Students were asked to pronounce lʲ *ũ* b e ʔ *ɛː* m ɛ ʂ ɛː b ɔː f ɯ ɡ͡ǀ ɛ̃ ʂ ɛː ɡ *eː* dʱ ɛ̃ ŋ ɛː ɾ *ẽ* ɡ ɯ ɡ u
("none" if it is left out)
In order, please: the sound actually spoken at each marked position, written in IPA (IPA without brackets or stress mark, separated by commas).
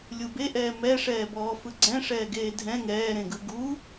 u, ɛː, eː, ẽ